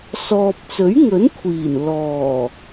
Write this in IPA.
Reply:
sɔː˧p̚ t͡sɵ˨˥ɥŋɵ˨˥nkʷʰiː˨˩n lɔː˨˩

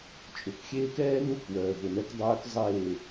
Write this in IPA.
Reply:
t͡ʃʼʊ˨kxʲeː˦kɛː˦nu˦˨k wœː˨vʊ˨nɛ˦k dˤœː˦k zˤeː˦˨

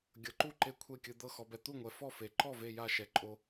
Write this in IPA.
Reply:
ɡʲɤ˩ǃu˥˩ ǃe˧˩kʷʰe˧˩kʲɯ˩ d̪ɤ˧˩xɔ˩bɛ˩ t̪u˥˩ŋʷɛ˩ fɔ˥˩fe˩ ǃɔ˥˩ve˧˩ja˧˩ʃɛ˩ ǃʼo˩

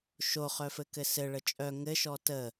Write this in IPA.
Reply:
ʃo χœfɘkɘsɘ ɭət͡ʃʼœ ŋɘ ʃɔtə

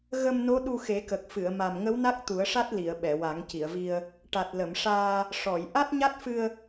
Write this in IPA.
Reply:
ɣə˧mno˧˥ ɗu˧xe˨˩˦kə˨˩k̚ fɨ˨˩˨ə̯ ma˨˩mŋə˧˥w na˦˥k̚t̪u˨˩˦ə̯ʂa˦˥t̚li˨˩˨ə̯ ɓɛ˨˩˨wa˨˩˦ŋci˨˩˨ə̯vi˧ə̯ | ʈa˨˩t̚lə˨˩˨mʂaː˧ | ʂɔ˨˩˨j ʔa˦˥t̚ɲa˦˥t̚fɨ˧ə̯

